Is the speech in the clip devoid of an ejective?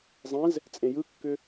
no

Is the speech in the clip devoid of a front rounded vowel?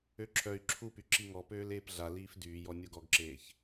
no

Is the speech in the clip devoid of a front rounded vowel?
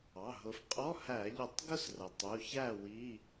yes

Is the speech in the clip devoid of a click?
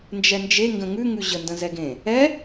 yes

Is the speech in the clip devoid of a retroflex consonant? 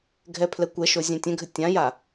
yes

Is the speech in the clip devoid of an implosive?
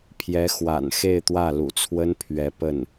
yes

